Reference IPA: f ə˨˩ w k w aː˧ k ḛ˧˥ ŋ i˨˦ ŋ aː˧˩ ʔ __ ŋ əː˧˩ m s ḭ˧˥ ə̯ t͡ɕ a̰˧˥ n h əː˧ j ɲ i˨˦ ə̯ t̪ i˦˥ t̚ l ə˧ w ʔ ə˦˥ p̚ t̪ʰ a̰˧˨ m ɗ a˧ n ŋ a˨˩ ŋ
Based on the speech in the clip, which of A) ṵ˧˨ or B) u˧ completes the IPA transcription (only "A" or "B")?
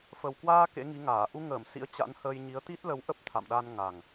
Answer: B